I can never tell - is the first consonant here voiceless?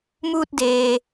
no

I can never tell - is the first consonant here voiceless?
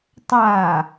yes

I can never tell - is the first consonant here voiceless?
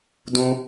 no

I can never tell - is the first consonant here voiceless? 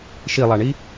yes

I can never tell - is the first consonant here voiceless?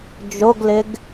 no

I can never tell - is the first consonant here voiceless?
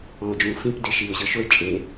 no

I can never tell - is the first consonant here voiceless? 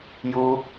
no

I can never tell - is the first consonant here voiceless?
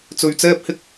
yes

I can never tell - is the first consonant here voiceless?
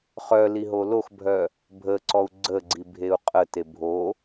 yes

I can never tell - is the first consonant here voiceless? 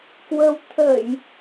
yes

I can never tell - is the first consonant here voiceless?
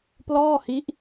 yes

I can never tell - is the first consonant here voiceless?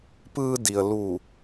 yes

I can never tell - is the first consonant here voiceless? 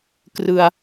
yes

